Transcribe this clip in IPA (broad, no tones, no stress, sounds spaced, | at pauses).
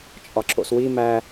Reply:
t͡ʃʼ ɒ ǁ o̰ s w i m æ